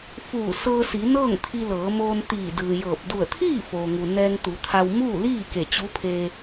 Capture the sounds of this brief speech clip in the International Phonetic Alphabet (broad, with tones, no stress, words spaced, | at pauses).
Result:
fuː˧˩sɤː˧ si˩˧nɤː˥˨ŋt̪ʰi˧ lɤː˩˧moː˧n t̪iː˧˩dɯː˩jɤː˧˩p̚ du˧˩ə̯t̪ʰiː˥˨foː˩ŋu˩ nɛː˧ŋt̪u˩˧t̪ʰa˧w muː˥˨liː˥˨ ke˧˩t͡ɕu˧˥pʰe˧